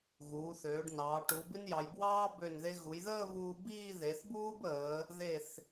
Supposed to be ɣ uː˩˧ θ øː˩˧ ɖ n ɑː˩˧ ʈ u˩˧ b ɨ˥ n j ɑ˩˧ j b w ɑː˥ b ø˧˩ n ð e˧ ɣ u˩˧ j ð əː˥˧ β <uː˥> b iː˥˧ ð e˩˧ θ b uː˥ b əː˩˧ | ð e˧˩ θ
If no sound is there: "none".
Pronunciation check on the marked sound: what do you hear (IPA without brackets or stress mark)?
uː˧